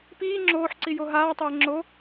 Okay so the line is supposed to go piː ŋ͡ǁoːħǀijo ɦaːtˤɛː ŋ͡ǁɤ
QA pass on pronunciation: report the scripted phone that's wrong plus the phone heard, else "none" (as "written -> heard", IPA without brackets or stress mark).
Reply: ɤ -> o